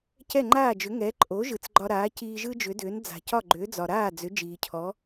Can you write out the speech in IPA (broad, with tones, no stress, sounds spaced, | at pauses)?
c ɛ˥˩ ŋ͡ǃ aː˥˩ d͡ʒ ʏ˩˥ ŋ ɛ˩˥ ǃʼ o˩˥ ʒ ɯ˩ t͡s ɡ͡ǃ ɒ˧ ɾ aː˩˥ c iː˧ ʒ ɯ˥ d͡ʒ ʏ˩˥ d ʏː˩˥ n d͡z a̤˩ c ɒ˥˩ ɡ͡ǃ ʏː˩˥ d͡z ɒ˩ ɾ aː˥˩ d͡z ʏ˩˥ d͡ʒ iː˩ cʰ ɔ˩˥